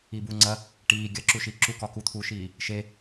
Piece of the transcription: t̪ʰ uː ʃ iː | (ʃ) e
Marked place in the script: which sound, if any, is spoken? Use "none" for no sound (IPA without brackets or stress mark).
ʃ